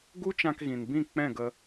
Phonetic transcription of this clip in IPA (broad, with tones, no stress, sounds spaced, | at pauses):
ɡ u˦ t͡ʃ ã˧ k ɣ ĩ˨ n b ĩ˦˨ k͡p ɛ̃˦˨ ɡ ə˧